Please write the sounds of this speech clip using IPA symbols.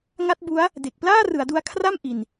ŋa˦˥t̚ bu˦˥a̯ | de˨˩k̚ plaː˥˩rɯ˩˦a̯du˧a̯ kʰra˥˩m ʔi˨˩n

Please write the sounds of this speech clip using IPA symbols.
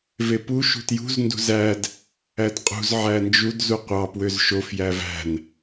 vepu ʃṳtjṳz ndṳzæd | ædqʼṳz ʕænd͡ʒud zuqʷɑ pwøzʃof jævæ̤n

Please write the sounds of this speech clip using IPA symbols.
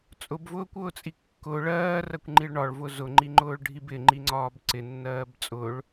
t͡sʼʊbvʊːkʷʊːt͡sʼi kːʊ ɭɜːrɜkʷŋ͡ǃiɭ ɳɒɭvʊ zʊŋ͡ǃiŋ͡ǃʊːɭɖʱib ɪŋ͡ǃiŋ͡ǀɒːb ǀɪnːɜːb t͡sʼʊɭ

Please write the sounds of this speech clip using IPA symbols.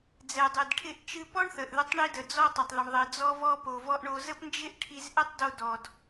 d͡zɛ˩dˤe˩dʈʰɪ˧ʔ t͡ʃɨ˧pɔ˥ɳθə˩ʔðʏ˧tˤ ɳi˧də˩ d͡zɔ˧tˤɪ˩tˤðə˩ɳ ðˤɪ˩d͡zɔ˧vɔ˧ po˩vɔ˧ʔɳo˧ zə˥pnd͡ʒɪ˥ʔʈʰi˧zʔɪ˥tˤ do˧dɔ˩d

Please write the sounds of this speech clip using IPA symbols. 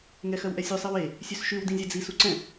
ŋɛxɜwʔɛsʲʉ sˤewe | sʲøsʃʉw dĩzʲɛd͡zi suǀɛ̃

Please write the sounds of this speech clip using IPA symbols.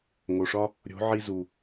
ŋo˨ʂɒ˦ | ɾʲo̤˨˦ʕi˧zu˨

